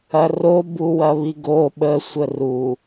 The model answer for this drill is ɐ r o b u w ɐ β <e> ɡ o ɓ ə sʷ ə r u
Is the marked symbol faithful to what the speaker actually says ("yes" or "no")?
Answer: no